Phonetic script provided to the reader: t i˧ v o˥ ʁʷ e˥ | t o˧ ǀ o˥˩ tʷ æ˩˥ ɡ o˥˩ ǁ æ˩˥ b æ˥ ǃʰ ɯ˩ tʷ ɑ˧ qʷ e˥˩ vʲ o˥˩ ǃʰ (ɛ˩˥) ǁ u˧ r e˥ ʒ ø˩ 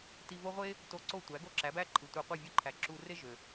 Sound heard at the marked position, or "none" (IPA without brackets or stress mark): æ˩˥